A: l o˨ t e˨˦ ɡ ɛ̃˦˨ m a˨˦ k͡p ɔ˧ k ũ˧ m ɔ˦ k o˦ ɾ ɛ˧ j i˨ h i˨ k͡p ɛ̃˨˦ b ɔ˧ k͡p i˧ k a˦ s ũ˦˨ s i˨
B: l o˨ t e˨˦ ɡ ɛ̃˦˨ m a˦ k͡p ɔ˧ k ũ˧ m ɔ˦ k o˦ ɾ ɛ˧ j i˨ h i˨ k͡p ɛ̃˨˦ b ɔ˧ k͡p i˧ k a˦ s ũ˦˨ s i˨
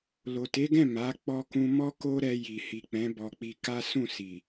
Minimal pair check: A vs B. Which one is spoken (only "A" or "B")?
A